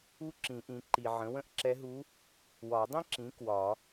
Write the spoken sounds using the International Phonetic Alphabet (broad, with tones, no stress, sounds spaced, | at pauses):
u˥ ǁ ĩ˨˩˦ ʔ ĩ˩˥ ǃ i˨ ʕ ə̃˩˥ w ə̃˥˨ ʔ ǁ ɛ˧˥ ɦ u˧˥ | w ɒ˨˩˦ dˤ ĩ˥ ǁ ĩ˩˥ k w ɒ˨˩˦